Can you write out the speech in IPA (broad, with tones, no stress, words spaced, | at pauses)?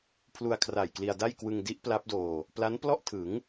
pʰlu˧a̯kʰra˨˩jkli˧a̯da˥˩j kwɯ˧ŋ di˦˥ʔ pla˦˥p̚doː˧ | pla˦˥nplɔ˥˩ʔtʰɯ˩˦ŋ